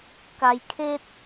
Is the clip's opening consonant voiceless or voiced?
voiceless